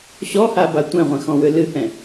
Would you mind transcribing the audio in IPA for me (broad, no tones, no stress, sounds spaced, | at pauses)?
ɕ ɔ h a b a tʷ ɛ̃ ʁʷ ɛ̃ x ɔ̃ w ʏ l ɨ h ɛ̃